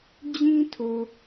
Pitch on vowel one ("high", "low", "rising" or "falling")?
high